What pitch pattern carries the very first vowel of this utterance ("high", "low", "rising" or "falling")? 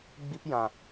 high